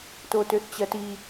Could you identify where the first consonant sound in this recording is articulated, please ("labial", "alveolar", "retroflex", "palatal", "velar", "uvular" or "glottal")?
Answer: alveolar